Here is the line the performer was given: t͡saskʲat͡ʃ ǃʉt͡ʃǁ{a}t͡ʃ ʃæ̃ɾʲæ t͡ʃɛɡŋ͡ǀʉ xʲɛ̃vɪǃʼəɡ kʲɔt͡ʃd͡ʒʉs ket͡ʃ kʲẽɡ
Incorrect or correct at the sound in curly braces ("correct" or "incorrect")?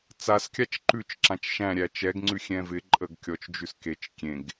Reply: incorrect